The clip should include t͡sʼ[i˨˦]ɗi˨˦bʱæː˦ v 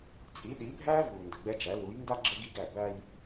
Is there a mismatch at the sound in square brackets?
no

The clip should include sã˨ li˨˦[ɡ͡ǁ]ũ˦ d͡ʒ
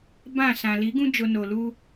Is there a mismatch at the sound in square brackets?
yes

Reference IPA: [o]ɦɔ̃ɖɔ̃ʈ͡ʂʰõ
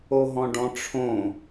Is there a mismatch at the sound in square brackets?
no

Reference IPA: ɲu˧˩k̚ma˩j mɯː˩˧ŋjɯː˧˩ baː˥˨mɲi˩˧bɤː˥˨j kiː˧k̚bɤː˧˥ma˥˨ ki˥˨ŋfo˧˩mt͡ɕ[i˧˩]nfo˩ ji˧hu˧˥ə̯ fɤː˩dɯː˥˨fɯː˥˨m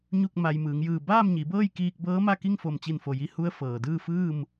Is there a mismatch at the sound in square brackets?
no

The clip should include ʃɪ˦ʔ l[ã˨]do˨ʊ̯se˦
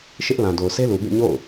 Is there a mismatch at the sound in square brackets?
no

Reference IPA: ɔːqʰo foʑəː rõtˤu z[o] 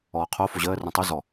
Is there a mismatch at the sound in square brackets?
yes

